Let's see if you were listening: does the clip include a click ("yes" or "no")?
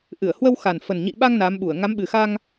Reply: no